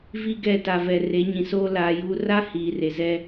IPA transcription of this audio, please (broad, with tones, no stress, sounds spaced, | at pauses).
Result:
v i˦ ɡ ɛ˦˨ t a˨ v ɛ˨ r e˨˦ ɲ ĩ˨ s oː˦ l aː˨˦ j uː˦ r a˦ h iː˨ r e˨ z ɛ˦